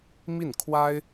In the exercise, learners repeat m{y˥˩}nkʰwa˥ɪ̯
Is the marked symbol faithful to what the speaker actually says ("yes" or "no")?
no